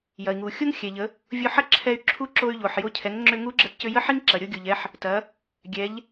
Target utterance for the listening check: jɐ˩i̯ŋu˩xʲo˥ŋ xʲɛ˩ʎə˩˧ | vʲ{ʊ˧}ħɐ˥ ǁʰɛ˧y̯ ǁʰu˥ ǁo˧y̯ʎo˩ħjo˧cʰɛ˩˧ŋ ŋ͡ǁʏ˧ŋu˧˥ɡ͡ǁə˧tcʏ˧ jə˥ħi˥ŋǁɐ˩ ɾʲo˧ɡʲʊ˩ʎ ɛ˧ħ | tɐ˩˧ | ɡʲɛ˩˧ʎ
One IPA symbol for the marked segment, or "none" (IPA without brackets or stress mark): ʊ˧